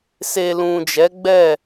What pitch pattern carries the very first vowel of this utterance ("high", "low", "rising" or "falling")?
low